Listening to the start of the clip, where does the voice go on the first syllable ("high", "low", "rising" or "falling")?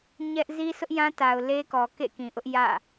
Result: high